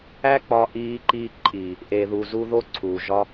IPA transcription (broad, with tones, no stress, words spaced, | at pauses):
æ˦k͡pɒ˧ʔiː˧ǃiː˧ ǃʼi˨ | ʔe˧ðu˧ zu˧ðo˧ ǀʰuː˨ʒɒ˧